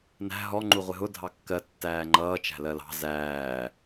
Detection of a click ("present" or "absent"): present